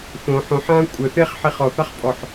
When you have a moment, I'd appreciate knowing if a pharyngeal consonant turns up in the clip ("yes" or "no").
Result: yes